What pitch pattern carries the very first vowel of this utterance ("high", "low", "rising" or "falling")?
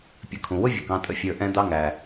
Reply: rising